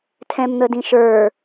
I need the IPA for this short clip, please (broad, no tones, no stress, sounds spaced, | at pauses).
tʰ ɛ̃ m n̪ ə d ĩ ʃ ə˞